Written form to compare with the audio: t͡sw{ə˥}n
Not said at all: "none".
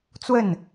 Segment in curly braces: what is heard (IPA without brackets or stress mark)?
ə˥˩